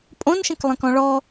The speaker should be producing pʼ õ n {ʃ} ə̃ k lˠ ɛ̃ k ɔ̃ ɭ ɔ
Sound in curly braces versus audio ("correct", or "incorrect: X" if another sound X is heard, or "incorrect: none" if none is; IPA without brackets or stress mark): correct